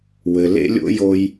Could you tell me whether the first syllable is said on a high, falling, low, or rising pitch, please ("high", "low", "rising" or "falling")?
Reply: low